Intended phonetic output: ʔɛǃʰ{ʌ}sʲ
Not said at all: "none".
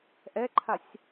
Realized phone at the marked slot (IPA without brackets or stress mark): a